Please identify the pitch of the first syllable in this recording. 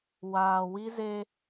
low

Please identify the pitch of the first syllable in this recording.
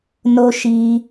high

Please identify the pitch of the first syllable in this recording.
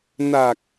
low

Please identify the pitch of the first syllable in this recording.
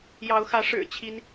rising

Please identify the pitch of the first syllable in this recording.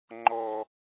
low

